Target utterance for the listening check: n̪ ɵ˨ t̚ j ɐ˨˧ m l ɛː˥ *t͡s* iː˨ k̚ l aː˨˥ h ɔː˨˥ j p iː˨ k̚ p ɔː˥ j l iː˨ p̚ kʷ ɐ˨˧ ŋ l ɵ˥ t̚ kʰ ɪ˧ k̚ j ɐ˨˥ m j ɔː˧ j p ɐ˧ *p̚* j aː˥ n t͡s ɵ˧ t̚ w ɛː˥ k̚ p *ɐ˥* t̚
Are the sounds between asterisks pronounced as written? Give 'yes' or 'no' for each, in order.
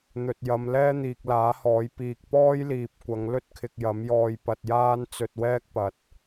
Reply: no, no, no

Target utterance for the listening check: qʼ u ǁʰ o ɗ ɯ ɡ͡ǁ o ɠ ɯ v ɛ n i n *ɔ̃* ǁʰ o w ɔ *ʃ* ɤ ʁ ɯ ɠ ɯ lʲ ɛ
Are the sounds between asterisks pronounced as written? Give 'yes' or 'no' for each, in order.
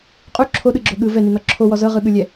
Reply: no, no

